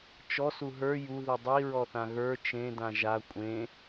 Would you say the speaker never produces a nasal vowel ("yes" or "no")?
no